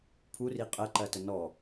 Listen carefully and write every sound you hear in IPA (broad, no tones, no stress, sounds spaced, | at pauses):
pʰ u r i qʼ ɜ ǃ ɜ t ə n ɔ